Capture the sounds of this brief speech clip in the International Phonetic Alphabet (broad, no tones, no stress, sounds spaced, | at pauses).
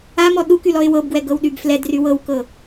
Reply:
a m ɔ ɗ u k y l ɔ ɪ̯ w ɤ b ɡ w ɛ ɡ ɤ w ɗ y b f l ɛ d r y w ɤ w k ɤ